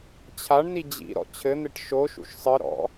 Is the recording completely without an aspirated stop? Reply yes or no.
no